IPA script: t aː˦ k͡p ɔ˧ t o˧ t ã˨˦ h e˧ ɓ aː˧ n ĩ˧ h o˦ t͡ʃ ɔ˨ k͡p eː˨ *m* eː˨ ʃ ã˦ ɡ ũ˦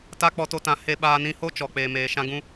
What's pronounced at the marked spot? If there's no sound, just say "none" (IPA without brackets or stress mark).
m